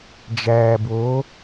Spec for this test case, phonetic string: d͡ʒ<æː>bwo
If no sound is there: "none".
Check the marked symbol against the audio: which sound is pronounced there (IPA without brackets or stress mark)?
æː